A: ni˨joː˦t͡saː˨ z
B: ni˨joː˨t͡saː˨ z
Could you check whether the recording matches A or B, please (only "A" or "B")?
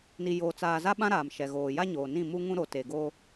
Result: B